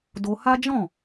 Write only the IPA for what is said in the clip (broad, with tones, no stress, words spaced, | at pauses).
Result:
do˧ha˦d͡ʒɔ̃˦˨